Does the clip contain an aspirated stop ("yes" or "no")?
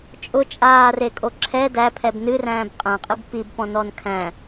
yes